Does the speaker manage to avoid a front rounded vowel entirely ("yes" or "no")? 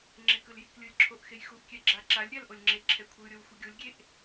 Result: yes